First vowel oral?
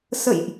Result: yes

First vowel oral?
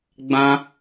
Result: no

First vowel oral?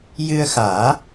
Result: yes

